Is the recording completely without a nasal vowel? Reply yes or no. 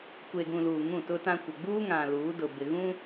no